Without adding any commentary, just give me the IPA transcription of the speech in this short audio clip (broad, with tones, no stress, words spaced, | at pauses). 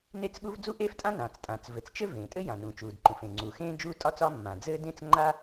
ne˥t͡sɠu˥v d͡zu˥ʔeː˥ftʼã˥ nãː˩t͡stʼãː˩t͡s vɘ˩t͡st͡ʃɘ˥ vẽː˩tʼɘ˥ jã˩nũ˩t͡ʃuː˩d ǃũ˩fẽː˩ ŋ͡ǀuː˩ xẽː˥ d͡ʒuː˥tʼɒː˥t͡sɒ˥ mːã˩d͡zɘː˥dẽ˥t͡s ŋ͡ǃa˥